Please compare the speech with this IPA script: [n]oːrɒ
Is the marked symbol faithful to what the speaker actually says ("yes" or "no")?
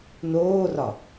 yes